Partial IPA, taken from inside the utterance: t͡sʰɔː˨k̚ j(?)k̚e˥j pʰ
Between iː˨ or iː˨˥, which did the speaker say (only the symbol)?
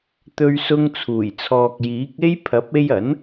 iː˨˥